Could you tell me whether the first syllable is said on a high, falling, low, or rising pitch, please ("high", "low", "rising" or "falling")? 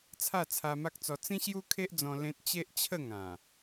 falling